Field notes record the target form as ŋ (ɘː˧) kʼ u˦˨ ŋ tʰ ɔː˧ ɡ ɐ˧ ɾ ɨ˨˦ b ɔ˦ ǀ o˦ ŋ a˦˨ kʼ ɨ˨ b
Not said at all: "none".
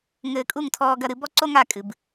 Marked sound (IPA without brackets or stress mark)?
ɘː˧